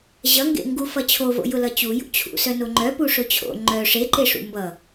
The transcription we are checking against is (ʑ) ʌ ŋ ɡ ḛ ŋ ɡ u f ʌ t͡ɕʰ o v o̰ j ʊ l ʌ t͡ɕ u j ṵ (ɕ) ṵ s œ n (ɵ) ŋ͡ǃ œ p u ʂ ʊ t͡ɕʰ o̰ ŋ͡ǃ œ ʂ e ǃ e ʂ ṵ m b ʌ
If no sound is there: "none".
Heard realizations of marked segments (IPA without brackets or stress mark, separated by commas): ʑ, t͡ɕʰ, o